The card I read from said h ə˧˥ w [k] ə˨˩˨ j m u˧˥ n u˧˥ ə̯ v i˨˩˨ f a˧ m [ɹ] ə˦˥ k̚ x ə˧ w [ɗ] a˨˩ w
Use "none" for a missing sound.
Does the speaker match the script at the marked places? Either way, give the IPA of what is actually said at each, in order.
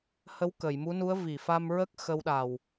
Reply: k, ɹ, ɗ

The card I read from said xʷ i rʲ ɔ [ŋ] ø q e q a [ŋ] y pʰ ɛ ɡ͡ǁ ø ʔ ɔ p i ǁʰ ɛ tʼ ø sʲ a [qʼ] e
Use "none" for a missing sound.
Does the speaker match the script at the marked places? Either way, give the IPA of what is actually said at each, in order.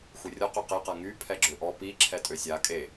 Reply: q, ŋ, kʼ

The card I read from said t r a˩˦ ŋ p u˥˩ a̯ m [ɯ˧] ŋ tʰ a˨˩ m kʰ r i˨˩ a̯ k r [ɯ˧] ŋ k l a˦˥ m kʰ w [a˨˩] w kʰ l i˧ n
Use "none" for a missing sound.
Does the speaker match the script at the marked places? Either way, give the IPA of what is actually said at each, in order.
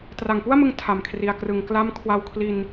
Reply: ɯ˧, ɯ˩˦, a˧

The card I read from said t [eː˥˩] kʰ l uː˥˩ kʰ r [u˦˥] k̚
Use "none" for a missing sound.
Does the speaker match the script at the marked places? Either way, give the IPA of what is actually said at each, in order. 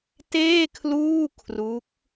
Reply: eː˥˩, u˦˥

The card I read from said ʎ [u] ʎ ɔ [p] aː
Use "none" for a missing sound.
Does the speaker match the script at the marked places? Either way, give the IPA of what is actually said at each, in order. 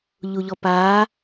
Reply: u, p

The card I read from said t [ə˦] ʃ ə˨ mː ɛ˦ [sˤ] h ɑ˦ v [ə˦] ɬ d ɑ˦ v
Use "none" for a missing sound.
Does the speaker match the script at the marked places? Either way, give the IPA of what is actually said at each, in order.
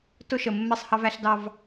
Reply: ʊ˦, sˤ, æ˦

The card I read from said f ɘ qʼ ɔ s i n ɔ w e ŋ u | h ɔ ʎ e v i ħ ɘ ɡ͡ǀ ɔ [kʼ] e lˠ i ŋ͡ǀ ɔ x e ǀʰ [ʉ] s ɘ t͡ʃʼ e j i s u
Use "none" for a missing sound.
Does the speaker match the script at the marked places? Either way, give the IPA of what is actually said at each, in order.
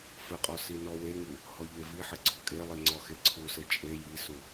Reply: kʼ, u

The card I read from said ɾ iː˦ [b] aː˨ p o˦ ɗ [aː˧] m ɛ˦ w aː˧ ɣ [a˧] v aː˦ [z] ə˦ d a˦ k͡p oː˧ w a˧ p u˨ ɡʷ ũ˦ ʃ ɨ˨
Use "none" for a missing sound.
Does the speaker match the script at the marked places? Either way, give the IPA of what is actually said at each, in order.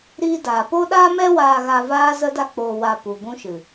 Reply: d, aː˦, a˧, z

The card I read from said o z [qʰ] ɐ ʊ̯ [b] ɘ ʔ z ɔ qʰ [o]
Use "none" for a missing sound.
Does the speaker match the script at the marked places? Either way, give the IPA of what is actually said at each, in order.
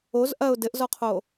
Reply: ʔ, d, o

